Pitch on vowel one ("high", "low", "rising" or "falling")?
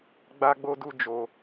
high